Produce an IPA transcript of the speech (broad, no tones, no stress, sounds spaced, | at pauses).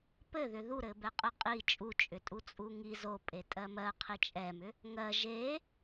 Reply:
p ɘ ð ʏ ð u ɾ ɘ b ɛ qʼ ɘ qʼ i t͡ʃʼ u t͡ʃʼ ʏ tʼ u t͡sʼ u ŋ i z o pʼ e tʼ ɜ m ɜ qʰ i t͡ʃʼ ɛ m ʏ | ŋ ɜ ʒ e